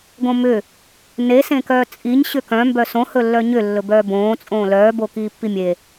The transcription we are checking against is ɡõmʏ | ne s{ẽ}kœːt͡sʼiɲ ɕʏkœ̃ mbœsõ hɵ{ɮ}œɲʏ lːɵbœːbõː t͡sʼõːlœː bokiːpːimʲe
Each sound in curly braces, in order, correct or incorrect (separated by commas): correct, incorrect